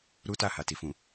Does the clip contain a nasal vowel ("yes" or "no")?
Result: yes